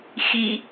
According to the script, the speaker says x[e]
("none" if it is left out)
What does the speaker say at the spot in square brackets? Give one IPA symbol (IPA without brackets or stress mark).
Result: i